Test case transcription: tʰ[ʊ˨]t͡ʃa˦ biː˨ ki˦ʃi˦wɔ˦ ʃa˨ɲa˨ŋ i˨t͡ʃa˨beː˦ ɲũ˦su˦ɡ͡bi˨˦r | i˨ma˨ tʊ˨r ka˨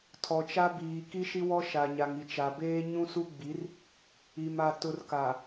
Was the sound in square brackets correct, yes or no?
no